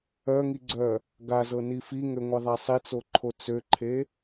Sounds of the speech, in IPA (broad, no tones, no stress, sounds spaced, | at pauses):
œ ŋ i ɡ͡ǀ œ | ɡ a z ɤ n i f i ŋ ø ŋʷ e ðˤ a sˤ i t͡s o ǃʰ o t͡s ø ǃʰ e